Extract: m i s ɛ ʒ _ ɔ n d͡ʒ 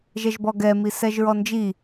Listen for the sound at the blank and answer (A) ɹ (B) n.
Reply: A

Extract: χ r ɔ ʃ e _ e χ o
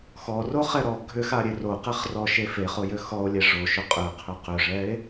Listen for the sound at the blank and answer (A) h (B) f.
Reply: B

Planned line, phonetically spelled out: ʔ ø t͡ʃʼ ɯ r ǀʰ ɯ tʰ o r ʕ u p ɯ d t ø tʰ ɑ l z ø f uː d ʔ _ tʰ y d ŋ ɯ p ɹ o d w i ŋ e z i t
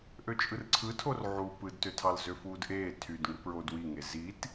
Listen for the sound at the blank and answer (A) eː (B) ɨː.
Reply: A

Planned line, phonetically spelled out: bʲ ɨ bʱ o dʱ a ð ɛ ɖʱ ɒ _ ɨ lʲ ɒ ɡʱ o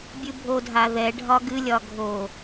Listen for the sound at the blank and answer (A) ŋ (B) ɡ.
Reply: B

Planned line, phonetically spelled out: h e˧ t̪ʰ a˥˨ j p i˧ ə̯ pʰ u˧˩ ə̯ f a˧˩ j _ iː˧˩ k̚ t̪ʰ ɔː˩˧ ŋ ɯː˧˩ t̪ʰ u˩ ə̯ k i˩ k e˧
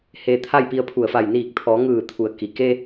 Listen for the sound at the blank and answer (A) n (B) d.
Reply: A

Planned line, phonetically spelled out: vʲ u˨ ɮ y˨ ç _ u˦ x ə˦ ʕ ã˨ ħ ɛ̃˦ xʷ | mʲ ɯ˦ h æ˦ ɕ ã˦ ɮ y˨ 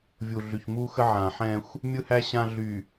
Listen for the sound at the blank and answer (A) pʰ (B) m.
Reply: B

